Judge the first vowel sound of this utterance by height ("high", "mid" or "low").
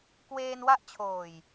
mid